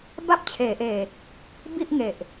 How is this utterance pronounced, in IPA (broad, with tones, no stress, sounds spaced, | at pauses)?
b a˥˩ p̚ t͡ɕʰ eː˩˦ ʔ eː˨˩ | b i˥˩ ʔ ŋ e˨˩ ʔ